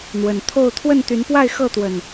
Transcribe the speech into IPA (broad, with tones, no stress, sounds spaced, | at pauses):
n̪ w ə˨˩ n t̪ʰ o˥˨ ʊ̯ t̪ʰ w ə˥˨ n t̪ y˨˦ n p w a˥˨ ɪ̯ x ɤ˥˨ t̪ w ə˨˩ n